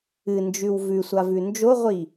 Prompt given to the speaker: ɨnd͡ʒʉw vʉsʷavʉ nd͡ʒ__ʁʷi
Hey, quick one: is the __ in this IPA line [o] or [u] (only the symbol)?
o